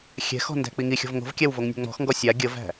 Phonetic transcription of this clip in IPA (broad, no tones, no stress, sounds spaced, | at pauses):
xʲ ɛ̤ x ɔ̤ n d æ̤ k͡p i ŋ i xʲ ɔ̤ v ŋ o̤ v kʲ æ w v o ŋ nʲ o̤ ŋ͡m ɔ̤ x ŋ ɡ ɔ sʲ a ɡʲ ə v æ̤